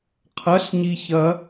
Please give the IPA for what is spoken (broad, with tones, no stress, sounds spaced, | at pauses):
qʰ ɐ˩˥ ɬ ɲ i˨ ç ɐ˨˩˦